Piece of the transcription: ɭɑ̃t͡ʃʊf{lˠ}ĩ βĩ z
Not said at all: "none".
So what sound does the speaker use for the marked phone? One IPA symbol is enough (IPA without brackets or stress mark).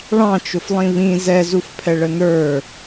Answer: lˠ